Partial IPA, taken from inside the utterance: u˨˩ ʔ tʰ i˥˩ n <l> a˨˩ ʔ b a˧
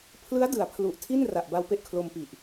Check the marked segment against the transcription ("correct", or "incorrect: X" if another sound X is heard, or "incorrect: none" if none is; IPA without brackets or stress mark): incorrect: r